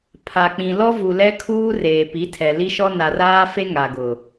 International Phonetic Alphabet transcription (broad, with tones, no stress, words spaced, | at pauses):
pʰa˨k͡pĩ˨ lɔ˦vu˨lɛ˦kʰuː˦ reː˨pi˨˦ tʰɛ˨ li˦ʃɔ˦ na˨raː˦fe˦ ŋa˨ɡʊ˨